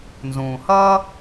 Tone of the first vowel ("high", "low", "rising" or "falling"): low